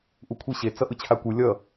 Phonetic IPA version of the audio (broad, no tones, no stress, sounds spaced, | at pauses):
ʔ u kʷʰ i ɕ e t͡s ʌ ʔ ɯ t͡ɕʰ a kʷ ɯ lʲ ʌ